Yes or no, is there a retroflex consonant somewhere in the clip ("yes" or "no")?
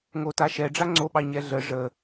yes